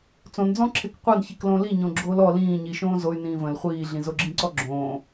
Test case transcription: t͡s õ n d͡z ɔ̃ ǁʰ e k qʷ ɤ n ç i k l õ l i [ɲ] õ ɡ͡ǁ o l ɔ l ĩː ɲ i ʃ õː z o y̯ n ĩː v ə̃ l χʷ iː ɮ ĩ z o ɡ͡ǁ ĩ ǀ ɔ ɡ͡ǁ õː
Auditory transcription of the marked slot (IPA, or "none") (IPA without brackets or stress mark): ɲ